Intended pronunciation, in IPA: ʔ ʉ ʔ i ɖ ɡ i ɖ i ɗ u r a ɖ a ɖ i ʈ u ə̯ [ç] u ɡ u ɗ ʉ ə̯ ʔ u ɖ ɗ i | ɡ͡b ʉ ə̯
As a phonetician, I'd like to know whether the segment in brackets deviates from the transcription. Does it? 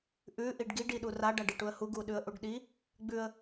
yes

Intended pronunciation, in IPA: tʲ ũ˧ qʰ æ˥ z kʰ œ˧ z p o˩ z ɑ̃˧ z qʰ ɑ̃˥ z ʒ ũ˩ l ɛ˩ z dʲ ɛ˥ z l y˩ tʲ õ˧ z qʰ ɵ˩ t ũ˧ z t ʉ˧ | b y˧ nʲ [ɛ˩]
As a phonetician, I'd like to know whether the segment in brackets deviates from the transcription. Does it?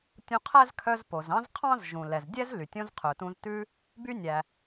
yes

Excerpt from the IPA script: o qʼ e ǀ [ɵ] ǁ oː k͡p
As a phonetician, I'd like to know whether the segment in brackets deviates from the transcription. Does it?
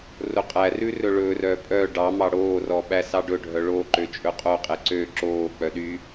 yes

